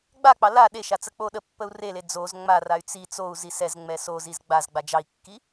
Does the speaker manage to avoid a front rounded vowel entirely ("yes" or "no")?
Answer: no